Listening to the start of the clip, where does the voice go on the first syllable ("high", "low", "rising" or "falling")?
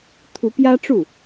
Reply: rising